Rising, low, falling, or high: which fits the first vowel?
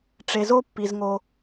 low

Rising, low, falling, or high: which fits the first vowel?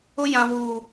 high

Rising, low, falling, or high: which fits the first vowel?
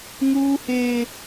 high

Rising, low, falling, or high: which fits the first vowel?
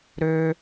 low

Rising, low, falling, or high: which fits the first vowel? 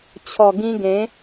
low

